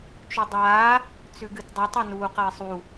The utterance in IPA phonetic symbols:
t͡ʃ ɵ dˤ aː | t͡s ʉ ɡ ɨ t dˤ ɐ tˤ ɐ n uː q ɐ ɪ̯ sˤ u

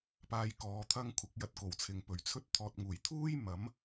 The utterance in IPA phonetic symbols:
p aː˧ j k ɔː˨˧ t̪ʰ ɐ˥ ŋ kʷʰ ɐ˨˥ k̚ j ɐ˧ t̚ k o˨˩ w t͡sʰ ɪ˨ ŋ p ɵ˨˩ ɥ t͡sʰ ɵ˥ t̚ t̪ʰ ɔː˧ t̚ ŋ uː˨˩ j t̪ʰ uː˥ j m ɐ˨˥ m

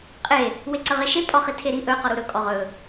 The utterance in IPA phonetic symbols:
qʼ e | w e ǀ ə ʁ e ʃ e pʼ ɔ χ i tʰ e ɾ i ʔ ɵ q ɔ ɾ u ɾ ɵ kʼ ɔ ʁ ɵ

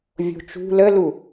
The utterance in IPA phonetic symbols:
vʲ o̤ t͡ʃ ṳ l ə l u

